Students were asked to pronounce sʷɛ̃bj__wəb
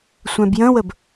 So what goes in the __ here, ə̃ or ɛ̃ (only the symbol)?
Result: ə̃